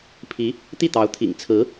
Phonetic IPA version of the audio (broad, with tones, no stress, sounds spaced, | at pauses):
pʰ i˧˥ | t̪ i˥˩ t̪ ɑ˧˥ ʊ̯ t̪ʰ ḭ˨˩ ŋ t͡sʰ ɹ̩˧˥